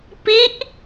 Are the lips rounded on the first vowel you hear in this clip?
no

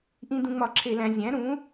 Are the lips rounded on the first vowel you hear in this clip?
no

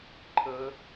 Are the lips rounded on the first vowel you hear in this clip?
no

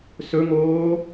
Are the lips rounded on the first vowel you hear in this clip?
yes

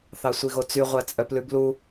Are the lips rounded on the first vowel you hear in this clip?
no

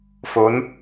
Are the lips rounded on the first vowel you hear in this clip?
yes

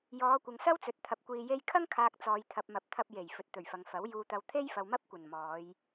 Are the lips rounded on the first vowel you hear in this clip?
yes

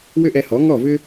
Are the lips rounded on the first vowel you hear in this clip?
yes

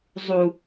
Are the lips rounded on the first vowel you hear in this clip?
yes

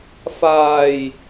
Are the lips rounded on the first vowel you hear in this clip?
no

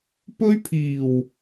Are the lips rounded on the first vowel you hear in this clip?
yes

